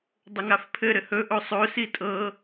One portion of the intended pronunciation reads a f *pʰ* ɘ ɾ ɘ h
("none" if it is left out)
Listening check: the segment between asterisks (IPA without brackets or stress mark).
pʰ